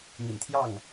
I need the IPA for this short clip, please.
mḭ˨˩nt̪ʰjɑ˥˩ŋ

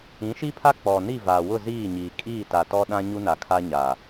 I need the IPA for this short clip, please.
ĩ˨˦ʃi˦pʰa˦ k͡pɔ˨ni˦˨ vaː˨wʊ˦˨ziː˦˨ɲiː˨ kʼiː˦˨ta˨tɔ˦ɗã˦ ɲu˦na˨kʰa˦ɲaː˨

